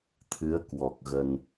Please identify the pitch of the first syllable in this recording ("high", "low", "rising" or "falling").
rising